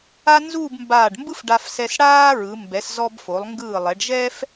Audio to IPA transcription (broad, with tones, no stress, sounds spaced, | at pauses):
a˥ n z uː˥˧ b m b aː˧˩ ɖ m b ɯ˥ f ɖ a˧ f s ɛ˧ s ɽ aː˥ ɹ ɯ˩˧ m b ɛ˩˧ s z ɔ˧ b f o˩˧ lˠ ŋ ɡ ɯː˧˩ lˠ ɛ˩˧ ɖ ʒ ɛ˥ f